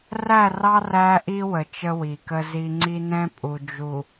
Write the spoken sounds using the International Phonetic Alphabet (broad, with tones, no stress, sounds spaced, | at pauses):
r æ˦˨ r ɑ˦ r æ˦ ʔ i˦ w ə˨ t͡ʃ ə˦ w i˨ k ə˦ z i˦ ŋ͡ǀ i˦ n ɛ̃˦ pʼ u˨ d͡ʒ u˨